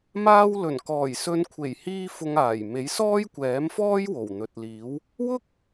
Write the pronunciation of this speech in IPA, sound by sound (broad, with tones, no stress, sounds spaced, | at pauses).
m aː˥ w l ɵ˨˩ n k ɔː˨˩ j s ɵ˨˧ n kʷʰ e˨˩ j h iː˥ f ʊ˧ ŋ aː˨˩ j m e˨˥ j s ɔː˥ j kʷ ɛː˨˥ m f ɔː˥ j w o˨˩ w n̪ ɵ˨ t̚ l iː˨˥ w | w ʊ˥ k̚